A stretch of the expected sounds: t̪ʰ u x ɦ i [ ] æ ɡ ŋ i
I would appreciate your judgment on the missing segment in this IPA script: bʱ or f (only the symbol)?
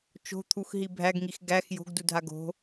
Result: bʱ